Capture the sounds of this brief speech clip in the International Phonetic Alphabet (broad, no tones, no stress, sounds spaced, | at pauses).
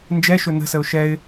n d͡ʒ ɛ ʃ ɵ n ə̤ s ə ʊ̯ ʃ ɛ ɪ̯